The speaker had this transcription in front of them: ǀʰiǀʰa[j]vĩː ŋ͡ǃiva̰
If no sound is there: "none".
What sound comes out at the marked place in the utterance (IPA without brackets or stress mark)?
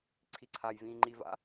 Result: j